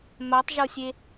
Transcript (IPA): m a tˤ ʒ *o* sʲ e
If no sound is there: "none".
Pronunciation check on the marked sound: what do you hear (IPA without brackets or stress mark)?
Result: o